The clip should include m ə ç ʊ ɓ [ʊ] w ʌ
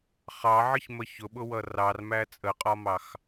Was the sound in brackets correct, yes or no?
yes